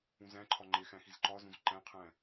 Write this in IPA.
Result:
ũzæ̃ǃʰɒ ŋ͡ǃexæ̃ xizǃɒzũz ǃæ̃qʰæ̃

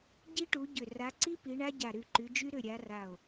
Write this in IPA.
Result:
ɟi˦˥ʈu˨˦ɟʏ˧˩ ra˨˦ǀi˦˥ pi˨˦ɳa˦˥ ɟa˧˩ɾy˧˩ǃy˨˦d͡ʒy˦˥ ɾʏ˧˩ ɾʲa˨˦ra˧˩o̯

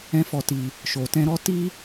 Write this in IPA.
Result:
ɛ̃˧fɔ˨ti˨ | ʃo˨tɛ̃˧ɾɔ˦ ti˦

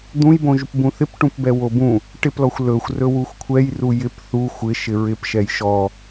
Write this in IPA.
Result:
d̪ũjbõ ʒupbũθɪp ʈũpbɛwobũ | ʈɪplɔxʷ lɵxʷrɵ wuxʷkʷʰɛjru jɪp θu xʷɪ ʃɪɹɪp ʃɛjʃɔ

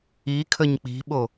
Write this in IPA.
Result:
i kʰəɲk͡pi̤ɓo

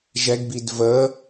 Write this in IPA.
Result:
ʒɛɡbid və

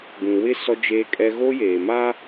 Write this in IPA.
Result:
ɡũ˨ wɪ˦ sɔ˦d͡ʒeː˦kʼɛ˦ ɣo˦ jeː˨maː˦

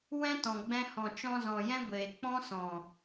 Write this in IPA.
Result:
wɛ̃˦tɔ̃˨ɡ͡bɛ̃˧ hɔ̃˨ t͡ʃɔ̃˧zɔ̃˨jɛ̃˦ɡʷeː˨ k͡pɔ̃˦sɔ̃˨

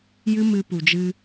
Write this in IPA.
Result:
jɨ˦ mɨ˧pu˨d͡ʒɨ˧

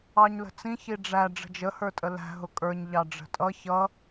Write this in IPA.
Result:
ɑɲlə̤t͡sĩ çiɖ͡ʐæ ɖ͡ʐə̤d͡ʒə hə˞tʼəlæ̤ ɦʊkʼə˞ɲ ʎɑɖ͡ʐə̤tʼʌ çʌ

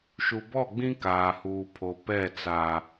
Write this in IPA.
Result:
ʃu˨bɔ˦˨ɡ͡bĩ˦ kaː˨huː˨pʰo˨ pɛ˦˨ t͡sa˨

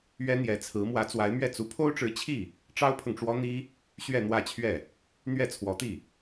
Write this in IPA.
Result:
ɥɛ˥n̪jɛ˧˥t͡sʰɹ̩˧˥ mwä˧˥t͡swa˧˥ɪ̯mɥɛ˥˩ t͡su˧˥pʰo˥ʊ̯ʈ͡ʂɻ̩˧˥ t͡ɕʰi˥˩ | ʈ͡ʂɑ˥ʊ̯pʰɤ˨ŋʈ͡ʂwɔ˥n̪i˥ | ɕɥɛ˥˧n̪wä˥˧t͡ɕʰɥɛ˥˩ | n̪ɥɛ˥˩t͡sʰwɔ˧˥t̪i˥˩

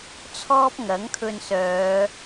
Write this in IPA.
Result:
t͡sʰɔː˥p̚ ŋɐ˨˥ŋkʰɵ˧nsœː˨˧

